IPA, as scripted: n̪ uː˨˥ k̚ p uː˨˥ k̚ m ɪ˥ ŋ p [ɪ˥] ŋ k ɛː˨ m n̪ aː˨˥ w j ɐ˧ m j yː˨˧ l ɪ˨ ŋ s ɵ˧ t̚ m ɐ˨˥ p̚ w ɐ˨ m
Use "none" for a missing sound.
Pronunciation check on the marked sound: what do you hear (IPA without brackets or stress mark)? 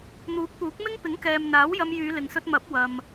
ɪ˨˥